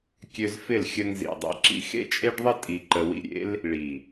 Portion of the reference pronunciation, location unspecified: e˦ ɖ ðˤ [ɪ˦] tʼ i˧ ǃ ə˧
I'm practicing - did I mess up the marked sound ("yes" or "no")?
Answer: yes